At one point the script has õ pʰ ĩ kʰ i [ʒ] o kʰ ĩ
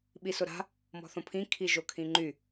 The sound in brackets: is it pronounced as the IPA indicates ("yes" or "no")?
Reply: yes